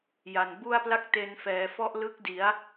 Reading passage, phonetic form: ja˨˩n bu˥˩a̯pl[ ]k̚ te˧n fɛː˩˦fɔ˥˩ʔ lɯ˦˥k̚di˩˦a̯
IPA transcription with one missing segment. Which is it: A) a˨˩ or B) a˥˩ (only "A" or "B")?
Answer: B